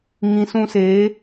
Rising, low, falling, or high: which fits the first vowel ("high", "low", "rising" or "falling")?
low